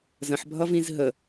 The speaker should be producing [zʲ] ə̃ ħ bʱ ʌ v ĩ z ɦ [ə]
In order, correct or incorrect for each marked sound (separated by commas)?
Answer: incorrect, correct